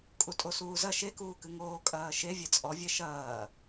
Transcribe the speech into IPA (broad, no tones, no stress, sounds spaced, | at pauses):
kʼ u tʼ o s uː z ɐ ʃ e k uː k ɨ ŋ oː kʼ ɐː ʃ e vʲ ɛ t͡sʼ ɔ vʲ ɛ ʃ ɐː